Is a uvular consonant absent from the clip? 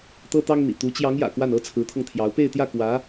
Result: yes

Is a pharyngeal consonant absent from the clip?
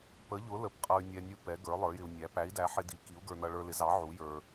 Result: no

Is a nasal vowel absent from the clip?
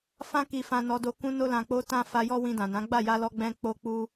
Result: no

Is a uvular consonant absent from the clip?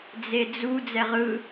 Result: no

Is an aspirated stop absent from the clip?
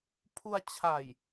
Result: no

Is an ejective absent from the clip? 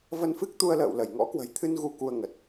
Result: yes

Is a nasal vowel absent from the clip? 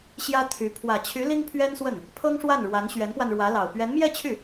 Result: yes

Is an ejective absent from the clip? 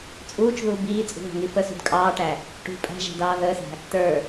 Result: no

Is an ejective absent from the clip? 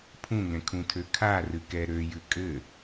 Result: no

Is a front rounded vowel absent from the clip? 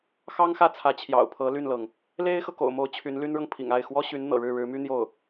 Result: no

